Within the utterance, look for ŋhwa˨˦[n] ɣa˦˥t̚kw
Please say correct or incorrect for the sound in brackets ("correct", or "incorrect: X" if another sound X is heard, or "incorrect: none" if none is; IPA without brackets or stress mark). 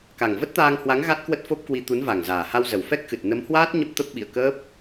incorrect: ŋ